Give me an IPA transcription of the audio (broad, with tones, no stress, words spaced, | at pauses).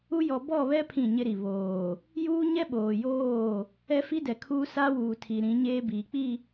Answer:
u˦jɔ˨ bɔ˦˨βɛ˦ pʰĩ˦˨ɲɪ˦ɾi˨ βoː˨ | juː˦ɲɛ˦ ɓoː˨joː˦˨ | ɛ˦fi˦dɛ˨kʰuː˦ sa˦wuː˨ tʰi˨ɾĩ˨˦ ɲeː˦biː˨k͡pi˦˨